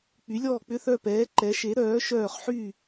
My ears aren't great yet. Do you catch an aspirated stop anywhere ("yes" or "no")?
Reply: no